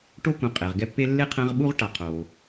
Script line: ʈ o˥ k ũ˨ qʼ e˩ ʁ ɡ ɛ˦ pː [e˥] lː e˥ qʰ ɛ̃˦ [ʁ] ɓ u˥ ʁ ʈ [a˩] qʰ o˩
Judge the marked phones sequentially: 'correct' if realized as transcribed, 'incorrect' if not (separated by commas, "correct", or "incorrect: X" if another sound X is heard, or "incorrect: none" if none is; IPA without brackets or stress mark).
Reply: correct, correct, incorrect: a˨